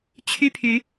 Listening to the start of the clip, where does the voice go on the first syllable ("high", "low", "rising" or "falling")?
high